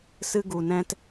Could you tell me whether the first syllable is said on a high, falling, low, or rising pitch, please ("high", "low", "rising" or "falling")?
high